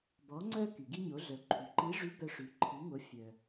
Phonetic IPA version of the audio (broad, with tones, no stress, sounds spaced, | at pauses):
b ɔ˩˧ ŋ͡ǀ œ˧ k y˩ ɡ i˧ ɲ o˩˧ ɮ œ˩˧ ǃʰ y˩ ǃ i˧˥ ʐ y˧˥ b œ˧ ʂ y˩˧ ǃʰ i˩˧ ŋ o˩˧ fʲ œ˩